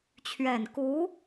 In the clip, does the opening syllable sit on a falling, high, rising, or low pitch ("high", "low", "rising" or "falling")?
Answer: low